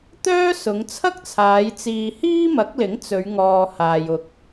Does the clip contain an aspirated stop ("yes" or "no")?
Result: yes